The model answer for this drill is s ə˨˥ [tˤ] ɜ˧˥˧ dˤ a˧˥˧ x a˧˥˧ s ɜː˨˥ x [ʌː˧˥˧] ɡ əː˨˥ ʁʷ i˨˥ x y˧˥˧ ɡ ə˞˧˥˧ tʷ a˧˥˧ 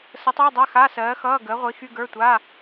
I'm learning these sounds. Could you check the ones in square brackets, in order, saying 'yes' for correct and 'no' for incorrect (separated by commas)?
yes, yes